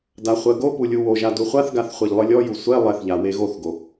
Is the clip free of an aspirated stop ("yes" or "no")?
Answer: yes